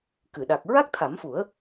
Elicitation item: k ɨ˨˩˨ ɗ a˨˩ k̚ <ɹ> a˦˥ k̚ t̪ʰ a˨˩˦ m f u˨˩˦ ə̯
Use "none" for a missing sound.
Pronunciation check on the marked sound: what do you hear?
ɹ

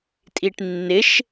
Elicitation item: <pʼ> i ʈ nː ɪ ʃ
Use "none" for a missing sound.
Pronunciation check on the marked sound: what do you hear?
tʼ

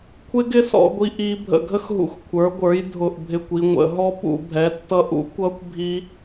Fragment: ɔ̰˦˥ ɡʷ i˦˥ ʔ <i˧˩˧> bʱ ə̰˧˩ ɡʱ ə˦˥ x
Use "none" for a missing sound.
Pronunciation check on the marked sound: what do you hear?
i˦˥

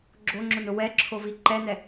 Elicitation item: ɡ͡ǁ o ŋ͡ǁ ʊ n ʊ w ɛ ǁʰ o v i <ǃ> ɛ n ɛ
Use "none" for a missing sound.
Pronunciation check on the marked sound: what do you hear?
ǃ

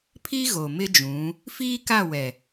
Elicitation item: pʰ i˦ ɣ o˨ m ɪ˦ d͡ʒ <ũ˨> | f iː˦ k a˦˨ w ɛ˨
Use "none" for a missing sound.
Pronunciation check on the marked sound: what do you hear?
ũ˨˦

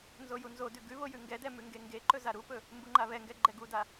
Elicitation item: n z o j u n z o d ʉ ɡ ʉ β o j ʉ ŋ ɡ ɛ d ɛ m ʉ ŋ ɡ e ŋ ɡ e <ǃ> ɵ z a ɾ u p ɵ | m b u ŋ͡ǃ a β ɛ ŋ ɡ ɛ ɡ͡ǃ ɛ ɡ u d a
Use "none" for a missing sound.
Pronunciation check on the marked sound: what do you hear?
ǃ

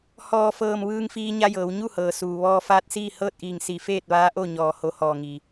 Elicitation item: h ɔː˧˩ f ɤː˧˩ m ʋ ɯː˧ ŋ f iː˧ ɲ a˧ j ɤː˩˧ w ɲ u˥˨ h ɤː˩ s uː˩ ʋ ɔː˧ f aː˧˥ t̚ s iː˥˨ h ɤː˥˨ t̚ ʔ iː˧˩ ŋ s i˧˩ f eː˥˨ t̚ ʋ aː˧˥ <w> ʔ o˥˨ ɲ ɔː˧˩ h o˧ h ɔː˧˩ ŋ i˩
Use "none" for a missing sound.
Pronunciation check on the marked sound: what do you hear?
none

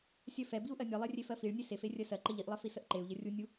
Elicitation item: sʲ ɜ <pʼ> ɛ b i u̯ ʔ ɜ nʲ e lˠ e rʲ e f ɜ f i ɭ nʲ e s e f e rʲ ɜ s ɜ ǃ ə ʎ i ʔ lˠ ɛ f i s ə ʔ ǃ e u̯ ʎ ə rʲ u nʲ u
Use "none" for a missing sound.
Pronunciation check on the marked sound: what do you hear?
f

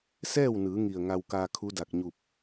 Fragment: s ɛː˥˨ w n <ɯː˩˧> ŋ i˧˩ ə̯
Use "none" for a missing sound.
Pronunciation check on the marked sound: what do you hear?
ɯː˩˧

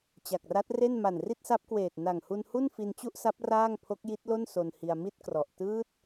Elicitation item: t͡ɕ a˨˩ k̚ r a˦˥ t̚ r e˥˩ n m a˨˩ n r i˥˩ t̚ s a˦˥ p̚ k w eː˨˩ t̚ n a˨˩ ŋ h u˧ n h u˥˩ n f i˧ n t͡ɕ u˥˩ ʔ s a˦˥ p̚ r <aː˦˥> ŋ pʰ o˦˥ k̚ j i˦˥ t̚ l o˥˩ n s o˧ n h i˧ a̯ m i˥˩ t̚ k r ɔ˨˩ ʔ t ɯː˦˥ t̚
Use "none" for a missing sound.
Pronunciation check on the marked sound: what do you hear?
aː˥˩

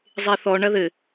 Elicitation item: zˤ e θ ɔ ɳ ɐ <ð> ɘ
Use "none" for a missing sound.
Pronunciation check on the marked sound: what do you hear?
ð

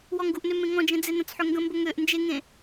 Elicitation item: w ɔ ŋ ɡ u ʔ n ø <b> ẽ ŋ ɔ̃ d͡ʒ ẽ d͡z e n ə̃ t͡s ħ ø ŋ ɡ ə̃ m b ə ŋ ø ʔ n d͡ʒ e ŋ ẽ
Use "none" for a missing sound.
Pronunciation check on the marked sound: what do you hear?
m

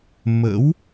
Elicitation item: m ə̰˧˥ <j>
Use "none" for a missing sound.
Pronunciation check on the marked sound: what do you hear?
w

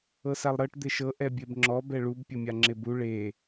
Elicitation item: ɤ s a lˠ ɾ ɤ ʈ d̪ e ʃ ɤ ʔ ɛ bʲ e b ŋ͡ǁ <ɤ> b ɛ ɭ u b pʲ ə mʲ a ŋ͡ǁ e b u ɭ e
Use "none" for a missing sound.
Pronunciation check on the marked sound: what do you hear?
ɔ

